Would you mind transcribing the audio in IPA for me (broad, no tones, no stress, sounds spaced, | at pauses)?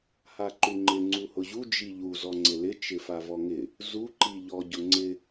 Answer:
h a ǃ u ŋ͡ǃ ɪ ŋ͡ǀ u h ʊ ʑ u d͡ʒ i ʎ u z ɔ ŋ͡ǀ ɪ l ɪ t͡ʃ ɪ f a v ɔ ŋ ɪ | z u ǃ i ʎ ɔ ɟ ʊ ŋ͡ǀ ɪ